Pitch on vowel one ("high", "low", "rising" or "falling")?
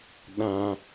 low